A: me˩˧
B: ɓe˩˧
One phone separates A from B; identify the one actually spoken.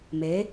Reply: A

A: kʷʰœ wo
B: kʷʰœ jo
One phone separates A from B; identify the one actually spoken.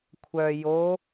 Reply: B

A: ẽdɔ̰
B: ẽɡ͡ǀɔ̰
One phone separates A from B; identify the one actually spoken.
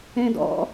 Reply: A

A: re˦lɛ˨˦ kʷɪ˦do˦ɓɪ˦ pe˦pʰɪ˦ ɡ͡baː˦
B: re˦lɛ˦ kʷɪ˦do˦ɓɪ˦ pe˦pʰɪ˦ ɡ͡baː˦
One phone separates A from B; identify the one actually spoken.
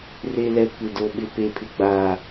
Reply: B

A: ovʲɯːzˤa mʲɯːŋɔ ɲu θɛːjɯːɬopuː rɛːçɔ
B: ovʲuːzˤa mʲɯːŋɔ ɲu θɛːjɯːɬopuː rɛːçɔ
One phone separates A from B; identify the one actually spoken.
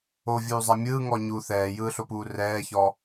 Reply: B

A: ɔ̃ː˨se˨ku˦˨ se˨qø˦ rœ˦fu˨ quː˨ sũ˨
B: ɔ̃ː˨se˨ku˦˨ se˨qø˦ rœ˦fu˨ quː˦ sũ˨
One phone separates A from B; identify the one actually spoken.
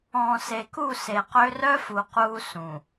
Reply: B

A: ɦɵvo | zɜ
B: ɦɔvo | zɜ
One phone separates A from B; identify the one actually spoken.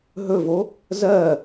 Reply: A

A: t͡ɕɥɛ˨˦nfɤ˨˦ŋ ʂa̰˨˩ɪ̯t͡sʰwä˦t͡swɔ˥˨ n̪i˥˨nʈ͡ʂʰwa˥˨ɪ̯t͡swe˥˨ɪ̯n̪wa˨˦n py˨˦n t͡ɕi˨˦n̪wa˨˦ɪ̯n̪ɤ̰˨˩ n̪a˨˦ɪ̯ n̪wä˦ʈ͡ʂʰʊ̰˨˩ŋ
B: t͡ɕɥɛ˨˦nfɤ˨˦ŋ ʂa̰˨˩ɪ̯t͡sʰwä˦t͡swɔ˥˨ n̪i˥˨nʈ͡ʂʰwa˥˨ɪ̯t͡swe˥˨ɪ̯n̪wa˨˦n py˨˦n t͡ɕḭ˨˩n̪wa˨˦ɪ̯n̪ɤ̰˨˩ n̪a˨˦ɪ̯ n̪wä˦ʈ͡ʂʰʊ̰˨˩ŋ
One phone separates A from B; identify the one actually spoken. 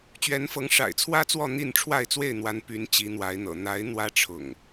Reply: A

